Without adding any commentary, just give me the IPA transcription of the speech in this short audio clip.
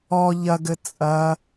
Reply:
ɔ ʎ ɐ ɡ ɘ t͡sʼ ɐ

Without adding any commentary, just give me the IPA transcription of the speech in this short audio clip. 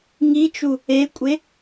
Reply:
ŋ i t͡ʃ u | e kʷʼ e

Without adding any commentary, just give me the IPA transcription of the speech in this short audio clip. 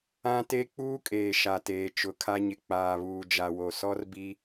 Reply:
ã˦ t e˦ k͡p uː˦ kʼ eː˨ ʃ a˨ t eː˨ t͡ʃ ʊ˨ kʰ a˦ ɲ ɪ˨ k͡p aː˨ β uː˨ d͡ʒ a˨ w o˨ s ɔ˦ r b i˦

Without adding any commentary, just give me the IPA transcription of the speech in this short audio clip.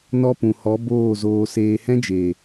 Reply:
n ɔ˦ p ũ˨ h ɔ˨˦ b oː˦˨ z oː˧ s eː˧ h ɛ̃˦ d͡ʒ eː˨

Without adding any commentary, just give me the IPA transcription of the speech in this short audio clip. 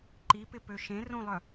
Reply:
ǃ i p ɪ p ø ʃ ẽ r ũ lˠ œ

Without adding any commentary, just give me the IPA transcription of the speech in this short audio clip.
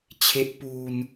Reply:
t͡ɕʰ e˦˥ ʔ p uː˧ n

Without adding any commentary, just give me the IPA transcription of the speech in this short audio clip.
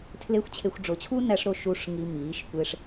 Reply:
tʰ l e˦ xʷ t͡ɕʰ e˧ xʷ ɖ͡ʐ o˨ t͡ɕʰ u˦ n æ˧ ʂ ɾ o˧ ʃ u˧ ʂ ŋ i˧ m iː˨˦ ʃ kʷ e˦ ʂ

